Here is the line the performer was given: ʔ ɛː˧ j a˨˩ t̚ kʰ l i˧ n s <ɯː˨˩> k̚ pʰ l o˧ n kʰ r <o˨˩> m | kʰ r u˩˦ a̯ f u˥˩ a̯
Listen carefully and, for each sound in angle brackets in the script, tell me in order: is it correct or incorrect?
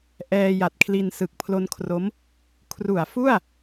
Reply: incorrect, incorrect

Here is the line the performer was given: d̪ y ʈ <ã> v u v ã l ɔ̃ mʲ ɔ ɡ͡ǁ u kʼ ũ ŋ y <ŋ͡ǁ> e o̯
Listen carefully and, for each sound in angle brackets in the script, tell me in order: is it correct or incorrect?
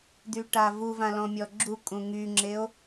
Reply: incorrect, correct

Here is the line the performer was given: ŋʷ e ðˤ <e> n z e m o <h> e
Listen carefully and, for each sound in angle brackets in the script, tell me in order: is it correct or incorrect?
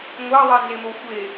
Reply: incorrect, incorrect

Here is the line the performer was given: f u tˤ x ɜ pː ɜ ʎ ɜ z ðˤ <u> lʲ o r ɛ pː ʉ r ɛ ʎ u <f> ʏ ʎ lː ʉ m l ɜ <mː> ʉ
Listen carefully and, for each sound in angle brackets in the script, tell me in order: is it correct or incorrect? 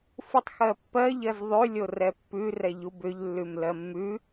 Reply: incorrect, incorrect, correct

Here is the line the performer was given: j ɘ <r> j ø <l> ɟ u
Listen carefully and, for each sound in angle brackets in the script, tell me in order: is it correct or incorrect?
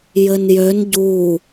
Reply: incorrect, incorrect

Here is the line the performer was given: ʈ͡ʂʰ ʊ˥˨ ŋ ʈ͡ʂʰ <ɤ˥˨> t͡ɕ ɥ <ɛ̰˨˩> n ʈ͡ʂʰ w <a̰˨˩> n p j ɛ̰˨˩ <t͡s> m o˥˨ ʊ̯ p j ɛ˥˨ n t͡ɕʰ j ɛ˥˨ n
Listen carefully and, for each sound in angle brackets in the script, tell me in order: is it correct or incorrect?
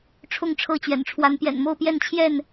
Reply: correct, correct, incorrect, incorrect

